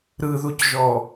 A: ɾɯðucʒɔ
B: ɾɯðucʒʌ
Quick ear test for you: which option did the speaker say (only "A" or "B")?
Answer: A